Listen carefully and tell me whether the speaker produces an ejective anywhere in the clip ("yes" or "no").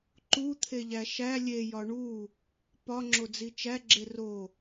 no